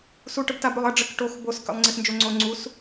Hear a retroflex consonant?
yes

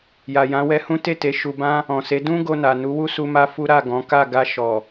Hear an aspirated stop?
no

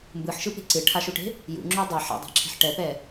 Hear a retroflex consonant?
yes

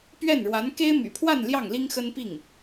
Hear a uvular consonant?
no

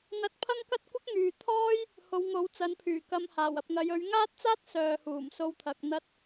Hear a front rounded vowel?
yes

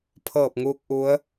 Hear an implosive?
no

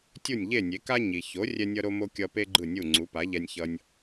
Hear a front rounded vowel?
no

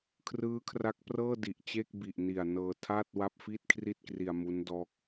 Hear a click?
no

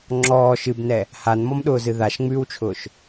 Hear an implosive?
yes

